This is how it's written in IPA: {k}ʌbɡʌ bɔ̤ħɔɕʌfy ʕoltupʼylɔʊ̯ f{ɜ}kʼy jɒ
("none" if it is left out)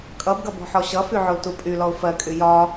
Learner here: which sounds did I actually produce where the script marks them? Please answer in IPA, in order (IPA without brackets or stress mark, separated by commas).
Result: kʼ, ɜ